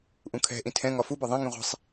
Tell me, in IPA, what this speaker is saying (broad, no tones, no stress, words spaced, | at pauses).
ʔũkʰɛ̤ʔĩ tʰɛ̃ŋɒ fubɒ ðˤẽŋĩ ʁʷe̤sˤ